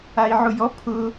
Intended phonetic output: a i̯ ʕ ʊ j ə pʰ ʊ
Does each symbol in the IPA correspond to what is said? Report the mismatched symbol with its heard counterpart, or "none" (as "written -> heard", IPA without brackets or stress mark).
ə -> ɔ